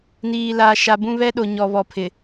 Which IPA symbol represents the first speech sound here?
n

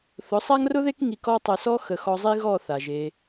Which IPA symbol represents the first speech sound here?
θ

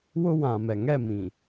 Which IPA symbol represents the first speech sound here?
w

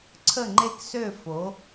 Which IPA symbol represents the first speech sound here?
ǀʰ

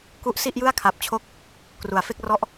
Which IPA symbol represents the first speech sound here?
k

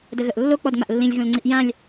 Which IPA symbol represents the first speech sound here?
d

